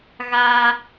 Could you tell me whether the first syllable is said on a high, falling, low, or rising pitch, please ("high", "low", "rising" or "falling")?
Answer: high